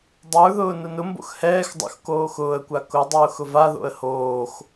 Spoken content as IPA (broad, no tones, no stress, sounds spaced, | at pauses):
dˤ ə˞ ð ʊː n ʊ n ʊ m b o̰ x h ɛː x dˤ o̰ x k oː x ʊː ə̯ kʷ a k ʊ dˤ ʊː x ʊ v a ð o̰ ə̯ h oː x